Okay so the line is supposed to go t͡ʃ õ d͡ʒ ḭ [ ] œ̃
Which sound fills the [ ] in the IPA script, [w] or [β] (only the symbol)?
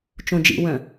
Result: w